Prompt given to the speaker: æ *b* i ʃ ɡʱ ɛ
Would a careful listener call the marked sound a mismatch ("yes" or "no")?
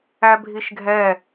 yes